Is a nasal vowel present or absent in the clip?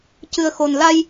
absent